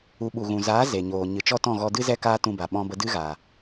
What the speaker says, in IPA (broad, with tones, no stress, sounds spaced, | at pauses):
u˧ ɓ u˨ ɣ ũ˨ z aː˨˦ z e˨ ɲ oː˨ ɲ ɨ˨ t͡ʃ ɔ˧ t ɔ̃˦˨ ɣ ɔ˧ d ɨ˦ z ɛ˦ k aː˦ t ũ˧ b a˨ ɓ ɔ̃˧ b ə˧ d ɨ˦ ɣ aː˨